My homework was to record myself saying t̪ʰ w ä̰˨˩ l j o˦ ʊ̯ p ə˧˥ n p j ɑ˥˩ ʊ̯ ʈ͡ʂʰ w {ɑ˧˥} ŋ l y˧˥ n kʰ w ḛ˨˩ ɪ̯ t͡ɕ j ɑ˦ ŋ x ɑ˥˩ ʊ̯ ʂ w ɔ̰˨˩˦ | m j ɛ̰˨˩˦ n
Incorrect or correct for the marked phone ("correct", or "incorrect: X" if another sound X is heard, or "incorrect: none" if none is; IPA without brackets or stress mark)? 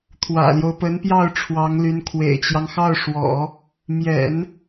correct